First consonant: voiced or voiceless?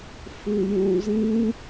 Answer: voiceless